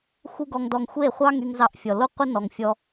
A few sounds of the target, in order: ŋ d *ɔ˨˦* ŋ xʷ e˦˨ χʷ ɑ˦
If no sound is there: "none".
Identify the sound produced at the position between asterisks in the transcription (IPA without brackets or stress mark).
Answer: ɔ˧